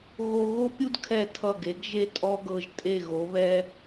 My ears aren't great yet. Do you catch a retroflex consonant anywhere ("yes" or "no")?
no